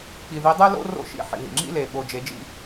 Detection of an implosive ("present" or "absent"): present